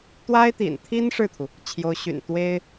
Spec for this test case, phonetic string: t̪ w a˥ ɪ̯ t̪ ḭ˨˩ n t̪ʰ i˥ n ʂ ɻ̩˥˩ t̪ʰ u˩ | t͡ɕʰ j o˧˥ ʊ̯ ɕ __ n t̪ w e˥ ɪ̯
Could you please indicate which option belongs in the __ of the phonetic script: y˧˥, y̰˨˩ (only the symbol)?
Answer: y̰˨˩